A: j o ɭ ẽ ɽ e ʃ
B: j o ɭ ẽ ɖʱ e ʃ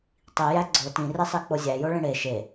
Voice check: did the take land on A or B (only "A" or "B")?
A